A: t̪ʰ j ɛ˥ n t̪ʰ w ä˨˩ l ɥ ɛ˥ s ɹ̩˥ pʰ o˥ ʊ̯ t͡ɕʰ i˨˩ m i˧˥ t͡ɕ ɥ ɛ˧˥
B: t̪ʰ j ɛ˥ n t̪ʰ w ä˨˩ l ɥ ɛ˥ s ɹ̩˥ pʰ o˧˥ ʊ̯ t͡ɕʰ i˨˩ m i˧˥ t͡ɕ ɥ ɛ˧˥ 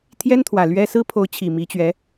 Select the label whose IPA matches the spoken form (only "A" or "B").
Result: B